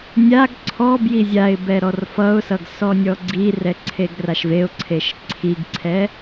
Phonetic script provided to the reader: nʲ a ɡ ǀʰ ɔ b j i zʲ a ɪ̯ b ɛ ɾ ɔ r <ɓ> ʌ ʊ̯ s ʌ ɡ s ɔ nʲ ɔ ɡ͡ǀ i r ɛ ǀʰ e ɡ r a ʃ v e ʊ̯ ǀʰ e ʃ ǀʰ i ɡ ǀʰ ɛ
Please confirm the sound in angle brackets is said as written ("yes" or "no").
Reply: no